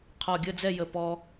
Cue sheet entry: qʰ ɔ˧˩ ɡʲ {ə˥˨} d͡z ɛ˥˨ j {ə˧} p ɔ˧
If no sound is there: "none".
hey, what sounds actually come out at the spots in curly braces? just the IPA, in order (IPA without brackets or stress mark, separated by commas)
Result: ə˥˨, ə˧˩